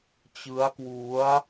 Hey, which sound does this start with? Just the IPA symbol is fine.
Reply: t͡ɕ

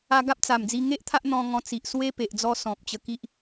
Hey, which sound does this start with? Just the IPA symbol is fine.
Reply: a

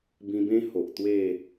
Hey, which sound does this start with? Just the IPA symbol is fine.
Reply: b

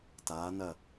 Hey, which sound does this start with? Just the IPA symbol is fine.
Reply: t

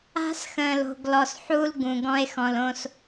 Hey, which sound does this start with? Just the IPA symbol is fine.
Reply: a̤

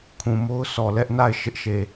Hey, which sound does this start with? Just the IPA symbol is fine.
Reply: kʰ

